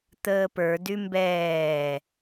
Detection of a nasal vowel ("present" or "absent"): absent